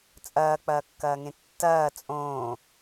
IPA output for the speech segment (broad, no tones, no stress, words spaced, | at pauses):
t͡sʼɐːk͡pɐːkːɐːŋẽ tːɐː t͡sʼõː